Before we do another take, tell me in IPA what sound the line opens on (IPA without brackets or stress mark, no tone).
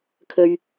kʰ